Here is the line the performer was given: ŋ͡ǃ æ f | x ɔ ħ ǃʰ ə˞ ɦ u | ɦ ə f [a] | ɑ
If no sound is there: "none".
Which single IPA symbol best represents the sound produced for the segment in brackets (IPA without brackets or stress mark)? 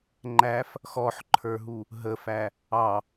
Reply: æ